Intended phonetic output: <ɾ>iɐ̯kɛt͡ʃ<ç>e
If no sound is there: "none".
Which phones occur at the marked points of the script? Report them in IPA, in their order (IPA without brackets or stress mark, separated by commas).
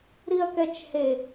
ɾ, h